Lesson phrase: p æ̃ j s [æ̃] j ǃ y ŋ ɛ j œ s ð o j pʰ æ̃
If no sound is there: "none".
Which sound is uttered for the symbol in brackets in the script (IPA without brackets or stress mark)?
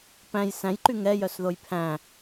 æ̃